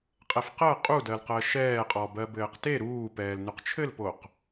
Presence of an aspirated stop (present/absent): present